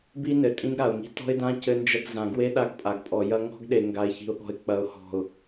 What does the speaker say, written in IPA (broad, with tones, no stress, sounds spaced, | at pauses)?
b i˦ n ɘ˨ tʼ ĩ˦ ɡ ɾ a˨ ʊ̯ ŋ i̤˦ t ɔ̤˦ ɪ̯ d ã˦ c ɘ˦ n d͡ʒ ɐ˦ ɡ z ã˨ ɡ w e˦ ɗ a˦ ɡ pʼ a˨ ɡ pʼ ɔ˨ j ɐ˦ ŋ ɔ̤˦ ɡ ɗ e˨ ŋ ɡ a˨ ɪ̯ ç i̤˨ ʊ̯ ɠ ɔ̤˨ ɪ̯ k͡p ɐ˨ ʊ̯ h ɔ̤˨ ʊ̯